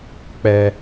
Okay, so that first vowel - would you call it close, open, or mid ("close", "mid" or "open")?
mid